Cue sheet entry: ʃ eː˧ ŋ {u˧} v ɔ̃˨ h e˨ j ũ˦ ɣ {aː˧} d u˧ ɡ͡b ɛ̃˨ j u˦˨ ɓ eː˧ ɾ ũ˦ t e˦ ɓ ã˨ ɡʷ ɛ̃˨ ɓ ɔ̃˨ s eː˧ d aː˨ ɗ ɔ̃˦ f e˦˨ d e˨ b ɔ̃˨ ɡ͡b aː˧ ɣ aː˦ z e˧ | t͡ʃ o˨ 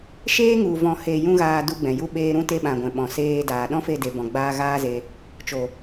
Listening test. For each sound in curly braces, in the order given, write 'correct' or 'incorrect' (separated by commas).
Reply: incorrect, correct